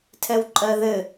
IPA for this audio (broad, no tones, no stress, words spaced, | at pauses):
tʰɛwǃʼɜðɘ